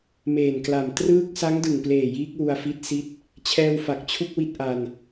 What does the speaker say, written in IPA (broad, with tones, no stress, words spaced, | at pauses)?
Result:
meː˨˩nkla˨˩m trɯː˥˩k̚ sa˦˥ŋdɯ˨˩ŋpleː˨˩ jiː˦˥k̚ wu˧a̯fi˦˥t̚ si˥˩t̚ | t͡ɕʰɛː˧wfa˨˩k̚t͡ɕʰu˥˩k̚ wi˥˩t̚ ʔa˧n